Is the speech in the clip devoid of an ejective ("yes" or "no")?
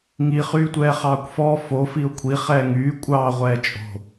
no